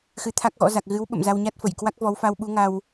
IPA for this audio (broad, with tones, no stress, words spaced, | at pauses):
xɨ˨˦t̪ʰa˦˥k̚ɣɔ̰˧˥za˨˩k̚ ɣɨ˨˦wɓə̰˧˨m za˧wɲa˦˥t̚fə˧˩jkwa˦˥k̚ vɔ˨˦wfa˧w ɓu˨˦ŋa˧w